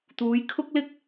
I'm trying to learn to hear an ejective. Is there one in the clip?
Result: no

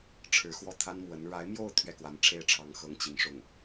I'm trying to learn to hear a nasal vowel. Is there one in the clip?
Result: no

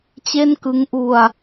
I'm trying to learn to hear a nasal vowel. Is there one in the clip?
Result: no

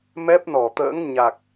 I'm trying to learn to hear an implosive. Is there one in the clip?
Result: no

